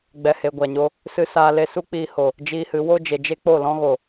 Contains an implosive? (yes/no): no